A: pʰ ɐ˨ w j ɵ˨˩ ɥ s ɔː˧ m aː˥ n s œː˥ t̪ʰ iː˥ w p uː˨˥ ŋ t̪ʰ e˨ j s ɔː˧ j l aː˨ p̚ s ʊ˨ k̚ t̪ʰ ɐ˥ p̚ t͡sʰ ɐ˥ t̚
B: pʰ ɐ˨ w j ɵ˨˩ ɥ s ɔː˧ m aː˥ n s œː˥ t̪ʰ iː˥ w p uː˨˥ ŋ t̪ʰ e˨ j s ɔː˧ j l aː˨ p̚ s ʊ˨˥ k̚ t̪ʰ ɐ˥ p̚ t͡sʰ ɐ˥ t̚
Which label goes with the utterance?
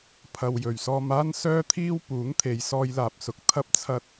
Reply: B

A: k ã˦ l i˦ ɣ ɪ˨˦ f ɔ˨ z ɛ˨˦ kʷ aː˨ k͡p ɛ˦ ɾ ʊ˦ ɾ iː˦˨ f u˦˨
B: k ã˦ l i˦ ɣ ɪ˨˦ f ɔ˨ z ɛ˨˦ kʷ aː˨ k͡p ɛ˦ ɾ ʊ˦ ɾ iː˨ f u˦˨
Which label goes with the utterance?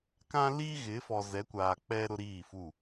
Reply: A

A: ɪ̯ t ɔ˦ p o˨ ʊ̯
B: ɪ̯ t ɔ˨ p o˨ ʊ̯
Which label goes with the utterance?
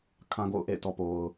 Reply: B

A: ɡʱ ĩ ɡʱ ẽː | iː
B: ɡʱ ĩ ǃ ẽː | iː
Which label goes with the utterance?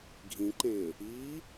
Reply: B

